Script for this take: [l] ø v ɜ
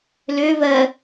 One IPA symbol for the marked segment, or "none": l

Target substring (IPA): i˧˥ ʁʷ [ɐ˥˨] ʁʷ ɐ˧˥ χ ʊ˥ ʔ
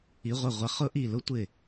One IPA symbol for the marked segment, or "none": ɐ˥˨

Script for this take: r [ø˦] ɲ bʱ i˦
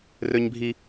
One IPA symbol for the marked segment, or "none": ø˦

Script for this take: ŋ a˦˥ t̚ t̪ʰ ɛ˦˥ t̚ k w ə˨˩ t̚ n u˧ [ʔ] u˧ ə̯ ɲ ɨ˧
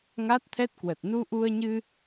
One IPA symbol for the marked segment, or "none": ʔ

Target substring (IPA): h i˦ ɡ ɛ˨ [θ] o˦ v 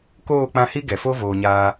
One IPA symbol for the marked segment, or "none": f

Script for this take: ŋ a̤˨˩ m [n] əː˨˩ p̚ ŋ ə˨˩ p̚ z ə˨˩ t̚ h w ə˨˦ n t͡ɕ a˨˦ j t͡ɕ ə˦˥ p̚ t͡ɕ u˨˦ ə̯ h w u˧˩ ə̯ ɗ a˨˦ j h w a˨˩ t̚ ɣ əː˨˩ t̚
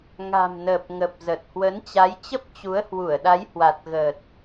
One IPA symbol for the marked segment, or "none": n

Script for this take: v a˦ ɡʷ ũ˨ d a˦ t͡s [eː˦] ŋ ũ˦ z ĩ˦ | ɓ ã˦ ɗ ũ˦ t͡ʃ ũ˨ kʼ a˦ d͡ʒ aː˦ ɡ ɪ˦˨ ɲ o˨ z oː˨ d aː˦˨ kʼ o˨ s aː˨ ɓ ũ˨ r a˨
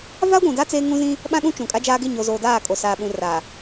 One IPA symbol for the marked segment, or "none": eː˦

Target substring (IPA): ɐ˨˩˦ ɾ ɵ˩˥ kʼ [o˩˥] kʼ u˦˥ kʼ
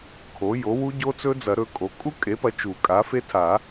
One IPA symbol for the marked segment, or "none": o˩˥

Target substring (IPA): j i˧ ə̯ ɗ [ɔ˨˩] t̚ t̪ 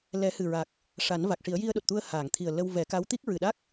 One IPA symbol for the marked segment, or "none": o˨˩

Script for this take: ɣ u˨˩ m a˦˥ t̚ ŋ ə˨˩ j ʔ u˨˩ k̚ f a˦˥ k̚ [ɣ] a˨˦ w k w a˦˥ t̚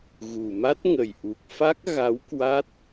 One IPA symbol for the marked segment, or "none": ɣ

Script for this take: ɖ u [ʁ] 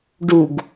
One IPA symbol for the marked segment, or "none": ɡ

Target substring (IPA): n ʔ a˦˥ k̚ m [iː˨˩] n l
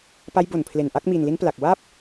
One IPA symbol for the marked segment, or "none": iː˨˩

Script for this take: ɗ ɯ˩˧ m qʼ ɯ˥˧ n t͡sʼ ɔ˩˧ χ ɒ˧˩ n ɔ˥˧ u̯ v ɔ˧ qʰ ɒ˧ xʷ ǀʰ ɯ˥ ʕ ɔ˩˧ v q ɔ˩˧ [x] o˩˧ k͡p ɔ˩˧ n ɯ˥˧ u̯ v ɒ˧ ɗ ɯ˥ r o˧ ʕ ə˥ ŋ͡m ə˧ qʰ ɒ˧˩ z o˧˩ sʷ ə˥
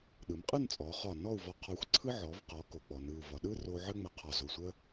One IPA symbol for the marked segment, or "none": k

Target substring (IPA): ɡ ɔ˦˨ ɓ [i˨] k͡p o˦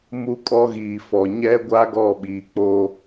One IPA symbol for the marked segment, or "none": iː˨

